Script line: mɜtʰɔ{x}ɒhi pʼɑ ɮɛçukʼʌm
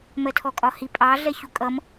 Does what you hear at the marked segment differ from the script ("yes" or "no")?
yes